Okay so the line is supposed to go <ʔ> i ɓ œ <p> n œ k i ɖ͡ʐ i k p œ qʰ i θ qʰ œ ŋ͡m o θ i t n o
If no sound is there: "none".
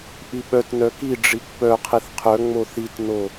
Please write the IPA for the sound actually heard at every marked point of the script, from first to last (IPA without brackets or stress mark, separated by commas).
ʔ, t